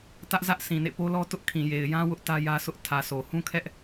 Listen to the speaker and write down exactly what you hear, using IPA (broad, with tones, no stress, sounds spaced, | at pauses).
t ä˦ ʔ z ä˦ ʔ s ĩ˨ n ḛ˦˨ p o˦ l ɔ˦ t ʊ˦ ʔ kʰ ĩ˨ j e˨ ɪ̯ j ã˦ w ʊ˦ ʔ t ä˦ j ä˦ s ʊ˦ ʔ tʰ ä˨ s o˨ h ũ˦ kʰ ɛ˦ ʔ